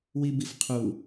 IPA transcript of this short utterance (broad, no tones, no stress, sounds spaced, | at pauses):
w i b i f qʰ u